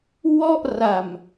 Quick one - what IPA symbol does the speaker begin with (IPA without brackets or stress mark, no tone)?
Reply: w